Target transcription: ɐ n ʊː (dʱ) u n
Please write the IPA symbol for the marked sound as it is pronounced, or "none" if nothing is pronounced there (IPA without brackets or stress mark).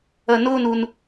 n